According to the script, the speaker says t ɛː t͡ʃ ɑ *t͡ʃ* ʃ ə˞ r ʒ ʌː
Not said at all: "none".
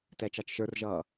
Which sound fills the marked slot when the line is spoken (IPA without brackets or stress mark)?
t͡ʃ